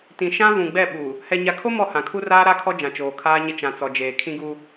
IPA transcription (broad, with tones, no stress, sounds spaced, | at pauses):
t ĩ˨ ʃ ã˦ v ũ˨ ɡ͡b ɛ˦˨ ɓ u˨ | h ɛ˨ ɲ a˨ kʰ o˦ m ɔ˦˨ h ã˨ kʰ u˦ r aː˦ ɾ a˦ kʰ ɔ˦ d͡ʒ ã˨ t͡ʃ oː˨ kʰ aː˦ ɲ ɪ˦ t͡ʃ ã˨ t͡s ɔ˨ d͡ʒ eː˨ kʰ ĩ˦ ɡ u˦